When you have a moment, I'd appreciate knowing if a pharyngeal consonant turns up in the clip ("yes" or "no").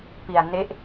no